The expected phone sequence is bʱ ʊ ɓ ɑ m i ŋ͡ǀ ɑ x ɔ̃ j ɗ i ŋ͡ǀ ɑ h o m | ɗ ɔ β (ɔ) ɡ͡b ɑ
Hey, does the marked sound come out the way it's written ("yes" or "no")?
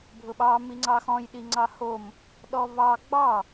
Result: no